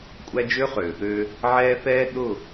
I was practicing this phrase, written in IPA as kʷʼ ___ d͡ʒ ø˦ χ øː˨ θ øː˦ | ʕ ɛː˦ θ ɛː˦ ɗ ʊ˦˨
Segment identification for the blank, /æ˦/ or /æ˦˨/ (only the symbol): æ˦